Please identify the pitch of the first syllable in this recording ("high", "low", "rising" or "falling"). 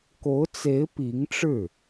rising